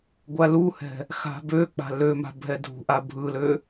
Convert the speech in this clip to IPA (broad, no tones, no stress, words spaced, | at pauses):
ɡʷaluhɛ̤ | xa̤bøk͡pa̤ løma̤ bʱɛdʱṳʔa bʱɯlø